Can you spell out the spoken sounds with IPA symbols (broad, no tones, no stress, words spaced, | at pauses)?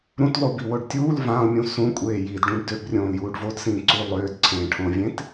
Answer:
ɾũtlˠubiwoɖ tʲuːl vãlˠmʲũ sũkʷʼeː jidɖũɖ døbrʲõːljuːɖ vodsĩː ǀu lˠøːdǀʰẽːʈʰõːvʲẽt